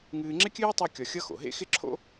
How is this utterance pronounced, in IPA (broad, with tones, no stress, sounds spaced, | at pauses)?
ŋ ɨː˧ ŋ͡ǁ ɪ˥ kʲ ɨː˥ tˤ a˥ kʲ ɒ˧ xʲ ʌ˥ x o̰˩ ɦ ḛ˥ x ɪ˥ ǁʰ o̰˥